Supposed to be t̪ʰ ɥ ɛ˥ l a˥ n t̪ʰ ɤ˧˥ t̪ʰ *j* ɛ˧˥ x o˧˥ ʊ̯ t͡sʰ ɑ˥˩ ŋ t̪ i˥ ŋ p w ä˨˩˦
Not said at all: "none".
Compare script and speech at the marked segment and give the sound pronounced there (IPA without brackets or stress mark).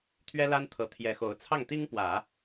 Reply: j